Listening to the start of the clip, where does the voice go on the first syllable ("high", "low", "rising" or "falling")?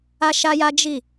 high